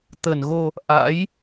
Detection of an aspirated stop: absent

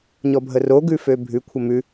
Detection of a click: absent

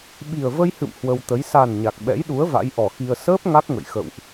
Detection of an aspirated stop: absent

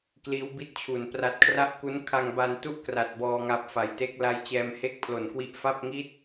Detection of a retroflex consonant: absent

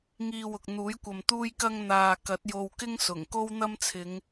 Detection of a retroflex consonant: absent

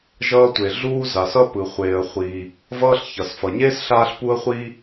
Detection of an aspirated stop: absent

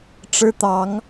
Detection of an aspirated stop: absent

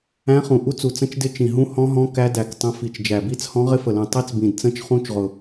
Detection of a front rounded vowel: absent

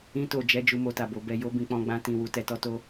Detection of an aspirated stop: absent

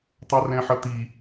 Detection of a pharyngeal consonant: present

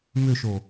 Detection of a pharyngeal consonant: absent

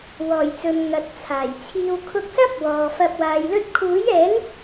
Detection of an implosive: absent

